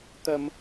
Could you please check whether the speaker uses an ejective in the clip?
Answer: no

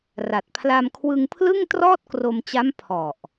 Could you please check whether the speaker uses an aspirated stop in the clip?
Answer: yes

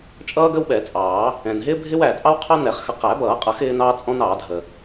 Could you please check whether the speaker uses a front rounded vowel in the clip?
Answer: no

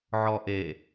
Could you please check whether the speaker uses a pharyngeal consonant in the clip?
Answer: yes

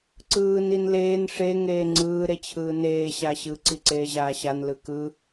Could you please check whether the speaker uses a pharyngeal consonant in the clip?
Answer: no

